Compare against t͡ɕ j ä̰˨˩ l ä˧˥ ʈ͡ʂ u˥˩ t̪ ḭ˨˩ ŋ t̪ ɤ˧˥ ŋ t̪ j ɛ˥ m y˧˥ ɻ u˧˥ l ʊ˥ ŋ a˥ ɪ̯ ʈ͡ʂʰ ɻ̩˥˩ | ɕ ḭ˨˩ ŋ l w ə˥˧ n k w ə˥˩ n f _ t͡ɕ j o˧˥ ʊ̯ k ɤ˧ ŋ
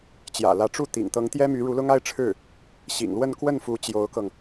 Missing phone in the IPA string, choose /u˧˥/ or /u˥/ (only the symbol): u˧˥